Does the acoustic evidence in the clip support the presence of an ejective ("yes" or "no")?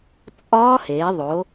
yes